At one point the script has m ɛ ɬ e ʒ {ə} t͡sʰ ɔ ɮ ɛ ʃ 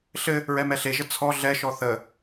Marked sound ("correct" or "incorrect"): correct